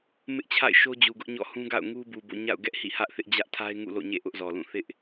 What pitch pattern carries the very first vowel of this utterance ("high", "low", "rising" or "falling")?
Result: high